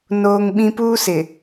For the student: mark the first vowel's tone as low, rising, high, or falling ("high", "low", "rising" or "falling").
high